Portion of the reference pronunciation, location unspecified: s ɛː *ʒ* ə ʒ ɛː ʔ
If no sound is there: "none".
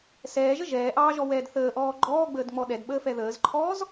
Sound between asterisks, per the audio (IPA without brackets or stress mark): ʒ